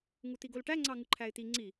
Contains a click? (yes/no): yes